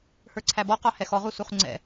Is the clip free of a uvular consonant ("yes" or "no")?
no